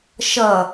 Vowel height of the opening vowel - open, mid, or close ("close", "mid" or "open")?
mid